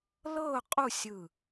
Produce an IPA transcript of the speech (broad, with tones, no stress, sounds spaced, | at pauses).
l ɤ˥˧ ʊ̯ qʼ u˥˧ sʲ ɯ˧˩